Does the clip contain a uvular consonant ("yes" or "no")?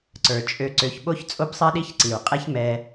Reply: yes